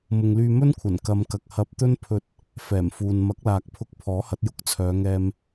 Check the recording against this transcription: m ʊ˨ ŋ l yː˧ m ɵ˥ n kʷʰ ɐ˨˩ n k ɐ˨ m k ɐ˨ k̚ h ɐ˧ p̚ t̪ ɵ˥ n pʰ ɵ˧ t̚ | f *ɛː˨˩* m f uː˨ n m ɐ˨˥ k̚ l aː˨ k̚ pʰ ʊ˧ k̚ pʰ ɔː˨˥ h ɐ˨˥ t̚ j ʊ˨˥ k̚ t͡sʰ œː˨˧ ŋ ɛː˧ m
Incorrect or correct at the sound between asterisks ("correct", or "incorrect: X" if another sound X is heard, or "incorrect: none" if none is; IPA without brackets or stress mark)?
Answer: correct